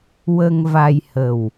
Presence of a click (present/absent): absent